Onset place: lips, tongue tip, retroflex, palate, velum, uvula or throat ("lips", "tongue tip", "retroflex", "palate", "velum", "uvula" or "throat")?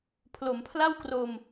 lips